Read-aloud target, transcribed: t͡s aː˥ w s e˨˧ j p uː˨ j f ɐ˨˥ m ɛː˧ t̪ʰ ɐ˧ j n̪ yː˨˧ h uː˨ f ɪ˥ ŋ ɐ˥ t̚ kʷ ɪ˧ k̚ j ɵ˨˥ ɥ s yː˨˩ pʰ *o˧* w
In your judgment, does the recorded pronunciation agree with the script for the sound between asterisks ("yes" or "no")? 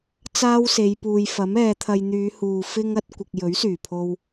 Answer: yes